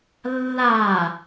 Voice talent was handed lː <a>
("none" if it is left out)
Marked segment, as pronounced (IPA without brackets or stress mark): a